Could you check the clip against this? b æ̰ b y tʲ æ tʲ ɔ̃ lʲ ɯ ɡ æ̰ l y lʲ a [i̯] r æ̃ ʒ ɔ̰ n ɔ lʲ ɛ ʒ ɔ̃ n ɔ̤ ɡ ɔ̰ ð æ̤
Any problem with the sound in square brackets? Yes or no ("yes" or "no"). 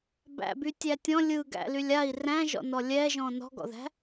no